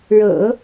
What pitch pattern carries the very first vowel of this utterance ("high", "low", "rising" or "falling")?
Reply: low